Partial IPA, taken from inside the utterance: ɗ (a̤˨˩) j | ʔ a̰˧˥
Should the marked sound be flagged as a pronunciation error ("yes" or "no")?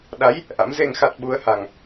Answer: yes